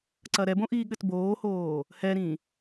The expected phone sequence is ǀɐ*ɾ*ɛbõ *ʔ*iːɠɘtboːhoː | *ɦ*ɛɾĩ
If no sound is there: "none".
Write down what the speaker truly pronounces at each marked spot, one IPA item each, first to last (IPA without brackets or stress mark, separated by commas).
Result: ɾ, ʔ, h